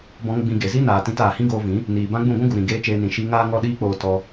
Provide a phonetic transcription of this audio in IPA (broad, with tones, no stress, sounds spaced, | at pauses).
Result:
b ɔ̃˧ ŋ ɡ͡b ĩ˧ ɡ e˨ z i˦ n aː˨ t ĩ˧ t aː˨ h ĩ˦ ɡ oː˧ v ĩ˨˦ | n iː˨ b ã˦ ɡ͡b ũ˦˨ ɡʷ ũ˦ ɡ u˨ ɾ ĩ˨ ɡ eː˦ t͡ʃ eː˧ n ĩ˨ ʃ i˧ ŋ aː˦ ŋ ɔ˦ ɗ iː˦ k͡p oː˧ t ɔ˧